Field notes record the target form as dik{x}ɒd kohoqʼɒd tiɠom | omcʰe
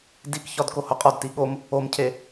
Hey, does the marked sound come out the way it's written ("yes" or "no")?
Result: no